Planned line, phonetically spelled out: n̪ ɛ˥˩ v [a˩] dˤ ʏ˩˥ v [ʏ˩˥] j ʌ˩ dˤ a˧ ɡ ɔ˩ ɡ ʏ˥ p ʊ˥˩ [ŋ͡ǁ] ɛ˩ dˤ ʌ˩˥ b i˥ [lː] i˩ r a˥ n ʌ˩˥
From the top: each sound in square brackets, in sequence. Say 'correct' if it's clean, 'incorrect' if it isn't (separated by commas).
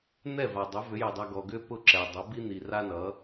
correct, correct, incorrect, incorrect